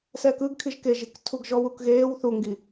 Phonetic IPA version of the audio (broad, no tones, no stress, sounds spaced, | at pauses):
s ɛː k ɯ ɡ kʰ i ʒ k e ʒ i k tʰ u ɡ ʒ ɔ w u k ɣ eː w θ u ŋ ɡ i